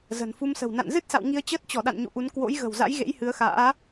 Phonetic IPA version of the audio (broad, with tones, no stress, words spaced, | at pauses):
zə̤˨˩nfu˧msə̤˨˩w na̰˧˨nzɨ˦˥t̚sa̰˧˨w ŋi˧ə̯ t͡ɕəː˦˥t̚t͡ɕɔ˧˩ɗa̰˧˨n ɲṵ˧˨ʔu˨˦n kwo̰˧˥jɣə̤˨˩wza̰˧˥j ɣḛ˧˥jhɨ˨˦ə̯xa̰ː˧˥